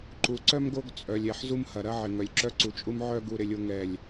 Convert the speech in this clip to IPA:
ǃ u˨ ǀ œ˦ m ɡ o˦ ɡ t͡sʼ œ˨ lʲ ɛ˨ ħ z u˦ m h ɐ˨ ɾ ɐ˦ ʕ ɪ˨ ŋ œ˨ lʲ ǁ œ˦ ǀ u˨ t͡ʃʼ u˦ m ʕ œ˦ ɡ u˦ ɾ ɪ˦ lʲ o˦ ŋ ɛ˦˨ lʲ

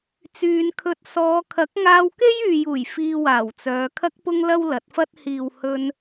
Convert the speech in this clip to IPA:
t͡s yː˧ n kʰ ɵ˧ t̚ s ɔː˨˧ kʰ ɐ˨˥ k̚ ŋ aː˧ w k e˥ j yː˨ j uː˨˩ j f iː˧ w aː˨˩ w t͡s œː˨˧ kʰ ɐ˧ k̚ p ʊ˧ ŋ l ɐ˥ w l ɐ˨˥ t̚ f ɐ˥ t̚ h iː˨ w h ɵ˧ n

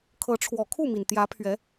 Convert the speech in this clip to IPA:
kʰ ɤ˨˦ ʈ͡ʂʰ w ɔ˨˩ kʰ u˥˨ m i˩ n t̪ j ä˨˦ pʰ ɥ ɛ˨˦

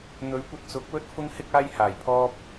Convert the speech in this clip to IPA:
n̪ ɵ˨˥ ɥ kʷ ɐ˧ t̚ t͡s ʊ˨˥ k̚ w ɵ˥ t̚ f ʊ˥ ŋ h ɪ˥ k̚ aː˥ j h aː˨˩ j pʰ ɔː˥ p̚

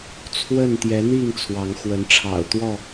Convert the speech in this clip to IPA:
t͡sʰ w ə˥˨ n t̪ j ɛ˨˦ n̪ i˥˨ ŋ t͡sʰ w ɑ˨˦ ŋ x w ə˨˦ n ʈ͡ʂʰ ɑ̰˨˩ ʊ̯ t̪ w ɔ˥˨

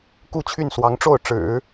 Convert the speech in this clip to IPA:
k u˥˧ t͡ɕʰ y˥˩ n s w ɑ˧˥ ŋ ʈ͡ʂ o˥˩ ʊ̯ ʈ͡ʂ ɻ̩˨˩˦

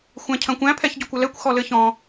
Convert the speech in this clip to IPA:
xʷ æ̃ cʰ ɐ̃ kʷ æ̃ pʰ ɛ ç ɟ ɔ kʷ ɘ l ɛ kʷ x ɔ l ɘ ç ɔ̃

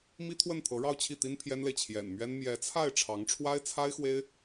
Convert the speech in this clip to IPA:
m i˥ t̪ʰ w ə˥˩ n t̪ʰ ɤ˧˥ ɻ ɑ˥˧ ʊ̯ t͡ɕʰ i˥˩ t̪ i˥ n pʰ j ɛ˥ n l e˨ ɪ̯ t͡ɕʰ j ɛ̰˨˩ n m ɥ ɛ˥ n m j ɛ˧˥ t͡sʰ a˥˩ ɪ̯ ʈ͡ʂʰ ɑ˧˥ ŋ ʈ͡ʂʰ w a˥ ɪ̯ t͡sʰ a˥ ɪ̯ x w e˥ ɪ̯

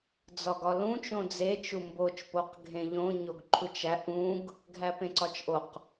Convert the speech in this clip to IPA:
d͡z ɒ ɡ ɒ l ũ t͡ʃ õ d͡z e t͡ʃ u m b o t͡ʃ p o q ɡʱ ẽ ʎ õ ɲ o ɡ ǃʰ u t͡ʃ æ ʔ ũ ɡ | ɡʱ æ p ẽ ǀ ɒ t͡ʃ ʔ o q

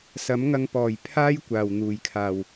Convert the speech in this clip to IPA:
s ɐ˨˥ m ŋ ɐ˧ ŋ p ɔː˨˩ j pʰ aː˥ j kʷ aː˨˩ w n̪ uː˨˩ j kʰ aː˨˩ w

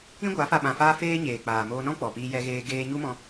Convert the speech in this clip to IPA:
ĩ˦ ɡʷ a˨˦ f a˧ ɓ ã˧ f aː˦ f eː˦ ɲ eː˨ k͡p aː˨ m oː˧ n ɔ̃˦ k͡p ɔ˨ p iː˧ j ɛ˧ ɣ eː˧ ɡ eː˧ ɲ u˦ m ɔ̃˧

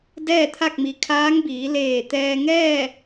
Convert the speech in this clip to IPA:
d ɛː˥˨ t̪ʰ a˥˨ k̚ m i˩ kʰ aː˧˥ ŋ b iː˩˧ l eː˧˩ t̪ ɛː˧ ŋ ɛː˥˨

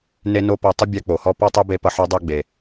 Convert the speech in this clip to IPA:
n e˥ n o˥ p ʌ˦ tˤ ə˥ bʲ a˦ k͡p o˨ h ɔ˦ p ɔ˥ tˤ ɛ˥ b e˦ p ʌ˦ ħ ɔ˥ dˤ o˦ ɡ͡b e˨

